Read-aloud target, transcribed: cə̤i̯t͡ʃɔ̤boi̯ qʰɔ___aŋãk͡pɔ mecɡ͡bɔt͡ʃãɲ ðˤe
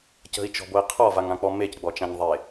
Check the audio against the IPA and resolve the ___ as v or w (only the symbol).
v